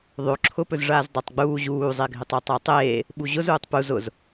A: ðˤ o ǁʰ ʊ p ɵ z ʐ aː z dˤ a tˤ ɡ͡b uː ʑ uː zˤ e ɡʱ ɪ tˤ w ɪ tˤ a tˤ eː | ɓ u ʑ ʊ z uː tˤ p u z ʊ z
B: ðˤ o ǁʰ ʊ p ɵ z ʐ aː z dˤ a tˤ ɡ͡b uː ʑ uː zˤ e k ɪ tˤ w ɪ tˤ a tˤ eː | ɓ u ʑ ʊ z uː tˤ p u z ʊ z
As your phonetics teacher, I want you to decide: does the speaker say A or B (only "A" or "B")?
A